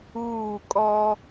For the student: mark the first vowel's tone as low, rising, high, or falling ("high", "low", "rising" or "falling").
falling